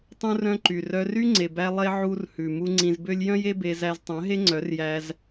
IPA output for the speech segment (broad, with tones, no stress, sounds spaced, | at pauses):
tˤ ũ˦ r œ̃˦ ǃ y˨ r œ˧ r y˦ ŋ͡ǀ e˨ b æ˧ lˠ e˦ ʕ u˧ r h ʉ˨ m u˧ ŋ͡ǀ ĩ˧ z b ø˦ lʲ j œ̃˦ j e˦ b e˧ z æ˧ z tˤ œ̃˨˦ ɦ e˦ ŋ͡ǀ œ˨˦ r j æ˧ z